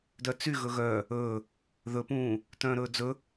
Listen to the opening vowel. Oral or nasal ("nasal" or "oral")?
oral